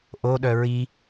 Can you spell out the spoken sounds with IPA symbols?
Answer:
ʔ o ɗ œ ɹ i

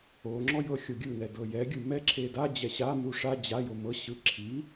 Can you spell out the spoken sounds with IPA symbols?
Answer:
o ŋ͡ǁ ɔ j ɤ xʲ o ɡʲ ɯ n ɛ d ɤ j ɛ ɡʲ ɯ m ɛ ǁʰ e d a d͡ʑ ɛ ɕ a m u ʂ a d͡ʑ a j o m ɤ ɕ ɯ ǁʰ i

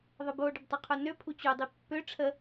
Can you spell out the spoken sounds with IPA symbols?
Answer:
ðˤ ə b o ɖ ɪ b tˤ u qʰ o n ø pʰ u t͡ɕ u dˤ i pː ø ʈ͡ʂʰ ə

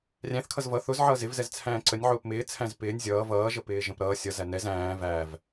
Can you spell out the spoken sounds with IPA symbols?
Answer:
rʲ æ̃ θ kʰ ʌ z v ʌ θ ʊ z ʕ ʌː z ɪ v z ɛ z t͡sʰ æ̃ː ǀ ə nʲ ʕ ʊː p m ɪː t͡sʰ æ̃ z p ɪː nʲ zʲ ʌː v ʌː ʒ ə p ɪː ʒ ə̃ p ɾ ʌː sʲ ʌ z æ n ɛ z æ̃ː v æ v

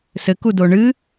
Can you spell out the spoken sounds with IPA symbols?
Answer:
s ɘ k u d o ɳ ɨː

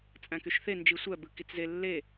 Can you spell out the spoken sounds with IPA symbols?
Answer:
t͡sʼ æ̃ k y ʃ θ e n d͡ʒ i sʷ æ b ɯ k i t͡s z e lː e

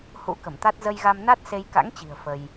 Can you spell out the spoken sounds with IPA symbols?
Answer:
h ṵ˧˥ k ə˧˩ m t̪ a˦˥ t̚ z ə˧ j ɣ a˧ m n a˦˥ t̚ s e˧ j k a̰˧˥ ŋ t͡ɕ i̤˨˩ ə̯ f ə˧ j

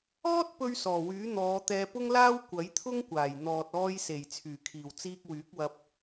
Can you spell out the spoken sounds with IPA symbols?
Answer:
ɔː˥ t̚ p ɵ˧ ɥ s ɔː˨˩ w yː˨˥ n̪ ɔː˨˧ t̪ ɛː˧ p ʊ˥ ŋ l aː˥ w kʷ ɐ˨˥ j t̪ʰ ʊ˥ ŋ kʷ aː˨˩ j n̪ ɔː˨ t̚ ɔː˧ j s e˨˩ j t͡sʰ yː˨˩ kʰ iː˨˩ w t͡s iː˧ k̚ w yː˨˥ k̚ w ɐ˧ p̚

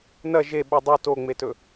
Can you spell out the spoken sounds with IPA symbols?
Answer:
n ɐ ʒ e ɓ ɨ dˤ u t o ŋ͡m e t ɵ

